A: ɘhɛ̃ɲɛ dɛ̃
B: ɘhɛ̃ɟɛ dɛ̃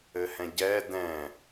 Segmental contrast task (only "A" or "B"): B